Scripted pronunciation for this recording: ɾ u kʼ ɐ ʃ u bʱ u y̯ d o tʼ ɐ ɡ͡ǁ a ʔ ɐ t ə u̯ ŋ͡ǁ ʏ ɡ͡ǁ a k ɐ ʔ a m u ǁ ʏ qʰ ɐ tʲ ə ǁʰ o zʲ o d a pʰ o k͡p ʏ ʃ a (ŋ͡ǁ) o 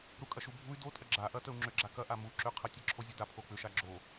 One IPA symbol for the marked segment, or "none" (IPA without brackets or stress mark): ɡ͡ǁ